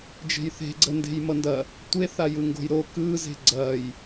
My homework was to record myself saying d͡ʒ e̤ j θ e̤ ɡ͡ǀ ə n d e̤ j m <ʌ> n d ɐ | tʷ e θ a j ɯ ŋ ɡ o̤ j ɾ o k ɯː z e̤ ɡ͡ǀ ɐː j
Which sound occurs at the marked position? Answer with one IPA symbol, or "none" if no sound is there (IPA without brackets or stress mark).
ʌ